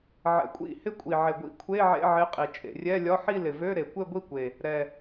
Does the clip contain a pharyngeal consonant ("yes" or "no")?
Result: yes